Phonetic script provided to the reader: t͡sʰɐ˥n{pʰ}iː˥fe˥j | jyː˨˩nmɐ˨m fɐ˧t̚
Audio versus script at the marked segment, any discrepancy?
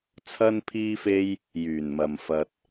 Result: no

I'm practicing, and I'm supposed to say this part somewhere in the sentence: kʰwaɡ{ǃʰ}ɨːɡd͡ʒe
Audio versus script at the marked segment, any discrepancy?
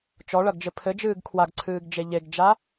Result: yes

